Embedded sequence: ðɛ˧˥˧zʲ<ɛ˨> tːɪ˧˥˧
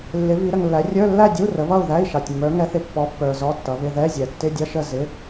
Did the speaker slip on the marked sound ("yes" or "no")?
no